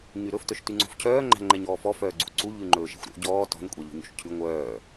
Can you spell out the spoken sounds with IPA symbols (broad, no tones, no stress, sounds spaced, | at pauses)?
ɲ y ɾ ɵ f t œ ʃ t y ŋ͡ǀ o̤ f cʰ œː ŋ͡ǃ æ̤ ŋ͡ǃ ɛ ɲ ɔː f ɔ f œː ɡ͡ǀ ṵ ǀ u ʎ ʉ ŋ͡ǃ ɵː ʃ ɛ̤ xʷ ɾ o̰ ɟ ɔː t ɔ̤ n kʷʼ ɛ ʎ ṳ ɲ o̰ ʃ cʰ ʉ ŋʷ œː